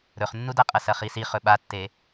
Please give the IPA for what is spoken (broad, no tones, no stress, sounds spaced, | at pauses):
ɾ ɵ χ nː u d a qʼ ɐ s ɐ χ i s i χ ɵ ɓ a tː e